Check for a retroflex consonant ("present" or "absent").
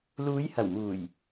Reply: absent